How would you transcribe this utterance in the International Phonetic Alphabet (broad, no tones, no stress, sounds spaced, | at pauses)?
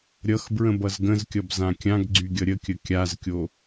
ɾʲ ʌ x b ɹ ə̃ b ʌ z ɡ ə̃ z kʲ ʌ b z ã kʲ ã ɡ ɡ͡ǀ y ɡʲ ʌ ɾʲ ə kʲ ə kʲ a z kʲ o